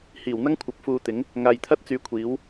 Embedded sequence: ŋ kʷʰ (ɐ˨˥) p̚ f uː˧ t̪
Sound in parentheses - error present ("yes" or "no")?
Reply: no